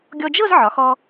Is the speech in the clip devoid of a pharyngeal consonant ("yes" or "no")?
no